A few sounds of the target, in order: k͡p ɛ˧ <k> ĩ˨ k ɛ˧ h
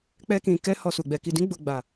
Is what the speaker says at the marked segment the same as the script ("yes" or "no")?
yes